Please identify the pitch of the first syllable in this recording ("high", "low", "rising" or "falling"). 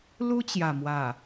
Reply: high